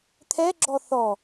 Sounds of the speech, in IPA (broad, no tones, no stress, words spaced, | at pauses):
t̪ʰɛ ɡ͡ǁɔθɔ